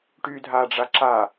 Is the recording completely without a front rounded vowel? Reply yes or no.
no